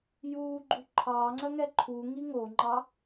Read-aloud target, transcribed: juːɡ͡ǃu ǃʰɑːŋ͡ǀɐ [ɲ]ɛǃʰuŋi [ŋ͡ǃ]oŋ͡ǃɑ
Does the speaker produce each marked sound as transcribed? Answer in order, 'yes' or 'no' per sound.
no, no

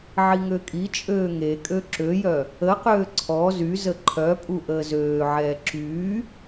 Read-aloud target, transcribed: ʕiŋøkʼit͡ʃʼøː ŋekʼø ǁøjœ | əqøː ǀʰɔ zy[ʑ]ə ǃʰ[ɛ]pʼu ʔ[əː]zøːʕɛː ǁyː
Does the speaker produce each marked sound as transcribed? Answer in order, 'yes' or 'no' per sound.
no, no, yes

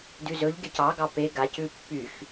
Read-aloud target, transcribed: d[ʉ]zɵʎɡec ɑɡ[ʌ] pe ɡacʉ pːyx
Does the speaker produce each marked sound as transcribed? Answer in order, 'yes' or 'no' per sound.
yes, no

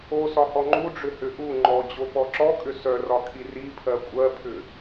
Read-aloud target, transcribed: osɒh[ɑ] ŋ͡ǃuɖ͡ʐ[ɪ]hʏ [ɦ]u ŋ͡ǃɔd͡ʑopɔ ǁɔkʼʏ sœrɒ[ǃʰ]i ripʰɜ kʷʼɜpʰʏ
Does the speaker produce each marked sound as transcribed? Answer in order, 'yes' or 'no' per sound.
no, no, no, no

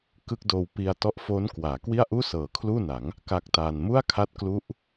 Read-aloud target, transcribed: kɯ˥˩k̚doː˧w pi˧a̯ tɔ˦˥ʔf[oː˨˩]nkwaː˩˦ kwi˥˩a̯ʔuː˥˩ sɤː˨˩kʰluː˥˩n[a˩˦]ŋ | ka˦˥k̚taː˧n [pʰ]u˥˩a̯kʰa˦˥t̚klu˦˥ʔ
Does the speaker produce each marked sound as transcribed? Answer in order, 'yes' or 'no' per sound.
no, yes, no

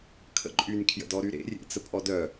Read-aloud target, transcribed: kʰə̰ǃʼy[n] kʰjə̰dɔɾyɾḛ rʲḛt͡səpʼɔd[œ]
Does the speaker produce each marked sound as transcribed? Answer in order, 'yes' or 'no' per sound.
yes, yes

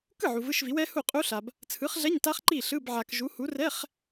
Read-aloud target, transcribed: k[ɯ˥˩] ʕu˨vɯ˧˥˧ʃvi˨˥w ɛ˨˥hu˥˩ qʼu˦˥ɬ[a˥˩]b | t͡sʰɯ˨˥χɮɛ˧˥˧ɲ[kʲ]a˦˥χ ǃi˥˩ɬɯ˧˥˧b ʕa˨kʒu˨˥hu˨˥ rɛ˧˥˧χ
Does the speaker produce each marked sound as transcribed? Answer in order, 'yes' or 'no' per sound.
yes, no, no

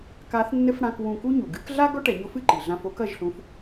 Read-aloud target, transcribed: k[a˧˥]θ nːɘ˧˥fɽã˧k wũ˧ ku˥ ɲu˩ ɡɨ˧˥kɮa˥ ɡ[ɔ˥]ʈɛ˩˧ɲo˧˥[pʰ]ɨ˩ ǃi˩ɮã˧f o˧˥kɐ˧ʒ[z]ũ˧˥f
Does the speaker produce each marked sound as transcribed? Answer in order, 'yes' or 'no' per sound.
yes, yes, no, no

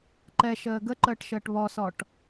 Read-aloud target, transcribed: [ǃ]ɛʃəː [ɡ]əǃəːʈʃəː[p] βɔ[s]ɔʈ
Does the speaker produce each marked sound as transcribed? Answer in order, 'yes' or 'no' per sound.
yes, yes, no, yes

